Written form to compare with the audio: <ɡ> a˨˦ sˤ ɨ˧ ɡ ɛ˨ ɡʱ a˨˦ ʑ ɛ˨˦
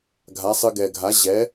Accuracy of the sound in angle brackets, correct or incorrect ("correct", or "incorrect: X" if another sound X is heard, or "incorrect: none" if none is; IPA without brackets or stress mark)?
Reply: incorrect: ɡʱ